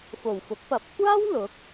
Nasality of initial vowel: oral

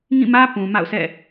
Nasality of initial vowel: nasal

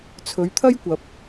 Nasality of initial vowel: oral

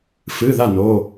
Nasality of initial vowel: oral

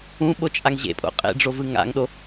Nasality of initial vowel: nasal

